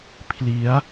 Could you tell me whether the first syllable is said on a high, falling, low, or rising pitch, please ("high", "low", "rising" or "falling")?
rising